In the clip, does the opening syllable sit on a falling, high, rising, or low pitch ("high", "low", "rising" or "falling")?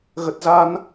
low